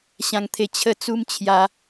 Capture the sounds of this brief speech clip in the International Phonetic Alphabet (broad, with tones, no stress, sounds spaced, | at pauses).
ɕ ã˧ ŋ t̪ʰ e˧ t͡ɕʰ ə˧ t͡s u˧ m t͡ɕʰ j a˧